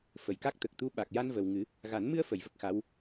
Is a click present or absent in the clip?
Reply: absent